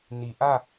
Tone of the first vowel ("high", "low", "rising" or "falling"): low